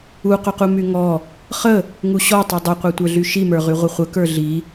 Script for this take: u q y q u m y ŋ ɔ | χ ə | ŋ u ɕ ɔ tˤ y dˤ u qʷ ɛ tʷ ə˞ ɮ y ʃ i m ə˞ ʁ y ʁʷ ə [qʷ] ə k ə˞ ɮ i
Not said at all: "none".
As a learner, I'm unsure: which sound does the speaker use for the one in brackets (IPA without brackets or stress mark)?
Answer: χʷ